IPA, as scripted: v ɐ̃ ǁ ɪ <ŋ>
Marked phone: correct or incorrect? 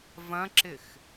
incorrect